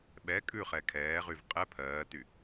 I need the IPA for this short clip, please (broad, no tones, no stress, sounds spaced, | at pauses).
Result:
ɓ ɛ kʼ ʉ χ ɛ kʰ ɛː ʁ y v qʼ ɛ pʰ ɜː t y